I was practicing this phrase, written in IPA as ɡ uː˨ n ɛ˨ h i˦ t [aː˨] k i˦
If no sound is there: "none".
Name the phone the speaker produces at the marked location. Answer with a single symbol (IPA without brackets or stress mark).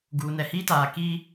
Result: aː˨